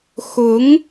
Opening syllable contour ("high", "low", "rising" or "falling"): rising